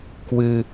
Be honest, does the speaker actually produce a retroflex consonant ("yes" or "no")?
no